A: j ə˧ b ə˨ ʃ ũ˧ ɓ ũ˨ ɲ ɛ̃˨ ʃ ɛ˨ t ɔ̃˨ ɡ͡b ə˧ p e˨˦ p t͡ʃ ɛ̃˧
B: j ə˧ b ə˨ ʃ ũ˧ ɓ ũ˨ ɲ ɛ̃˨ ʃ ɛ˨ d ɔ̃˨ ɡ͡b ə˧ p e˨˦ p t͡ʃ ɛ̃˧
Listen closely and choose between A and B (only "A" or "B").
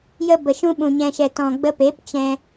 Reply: A